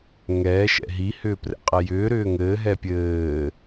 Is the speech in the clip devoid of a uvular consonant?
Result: no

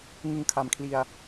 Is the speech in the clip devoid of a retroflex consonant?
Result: yes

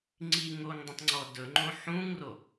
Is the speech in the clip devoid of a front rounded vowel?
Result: yes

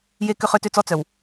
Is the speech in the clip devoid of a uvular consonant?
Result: no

